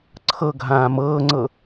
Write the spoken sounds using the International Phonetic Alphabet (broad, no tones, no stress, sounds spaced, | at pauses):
ǀʰ ɤ ɡʱ ãː m ɤː ŋ͡ǀ ɤ